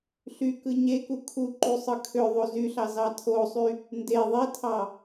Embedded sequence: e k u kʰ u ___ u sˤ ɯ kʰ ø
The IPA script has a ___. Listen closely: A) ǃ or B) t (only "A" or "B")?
A